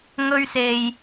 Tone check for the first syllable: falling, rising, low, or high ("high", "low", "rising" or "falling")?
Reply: high